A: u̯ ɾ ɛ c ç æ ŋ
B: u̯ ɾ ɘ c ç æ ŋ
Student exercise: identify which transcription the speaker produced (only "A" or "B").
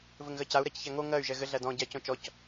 A